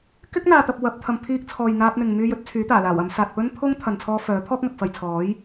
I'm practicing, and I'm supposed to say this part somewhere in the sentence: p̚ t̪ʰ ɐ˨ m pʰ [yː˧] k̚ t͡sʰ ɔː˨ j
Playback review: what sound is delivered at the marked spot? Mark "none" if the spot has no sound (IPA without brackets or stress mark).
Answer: iː˧